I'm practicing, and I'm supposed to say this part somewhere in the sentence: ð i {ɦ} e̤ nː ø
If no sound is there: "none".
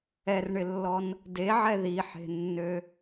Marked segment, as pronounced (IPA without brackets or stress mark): ħ